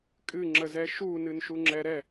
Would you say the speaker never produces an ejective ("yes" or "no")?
no